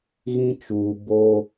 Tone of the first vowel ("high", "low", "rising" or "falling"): high